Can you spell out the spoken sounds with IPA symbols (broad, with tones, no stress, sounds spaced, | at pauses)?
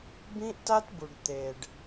b ĩ˦ ʔ t a˦ t b u˨ ɖ t̪ e˨ ɖ